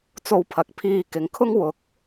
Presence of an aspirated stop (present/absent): present